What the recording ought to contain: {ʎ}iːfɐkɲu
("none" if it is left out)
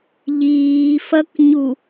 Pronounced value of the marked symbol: ʎ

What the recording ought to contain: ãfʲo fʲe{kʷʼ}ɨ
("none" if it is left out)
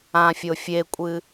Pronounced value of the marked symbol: kʷʼ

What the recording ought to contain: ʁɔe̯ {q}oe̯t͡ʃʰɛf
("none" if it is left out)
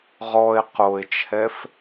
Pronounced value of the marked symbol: q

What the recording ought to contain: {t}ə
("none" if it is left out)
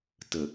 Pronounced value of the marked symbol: t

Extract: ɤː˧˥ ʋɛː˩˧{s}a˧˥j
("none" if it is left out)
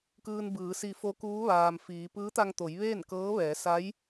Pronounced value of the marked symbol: s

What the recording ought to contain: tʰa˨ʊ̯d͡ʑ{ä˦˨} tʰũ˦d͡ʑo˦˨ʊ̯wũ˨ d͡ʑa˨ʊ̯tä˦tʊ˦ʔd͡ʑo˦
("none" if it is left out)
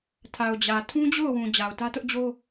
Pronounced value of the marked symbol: ä˨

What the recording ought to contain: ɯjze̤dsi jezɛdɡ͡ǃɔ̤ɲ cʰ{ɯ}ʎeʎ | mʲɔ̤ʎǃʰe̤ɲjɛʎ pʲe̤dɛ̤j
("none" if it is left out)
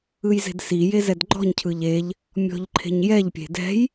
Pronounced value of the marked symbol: ɯ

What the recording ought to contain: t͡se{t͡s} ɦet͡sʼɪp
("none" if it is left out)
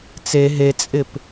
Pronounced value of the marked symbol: none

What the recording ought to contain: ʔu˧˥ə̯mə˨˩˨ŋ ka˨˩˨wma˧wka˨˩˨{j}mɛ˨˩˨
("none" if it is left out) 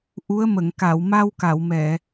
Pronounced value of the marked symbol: w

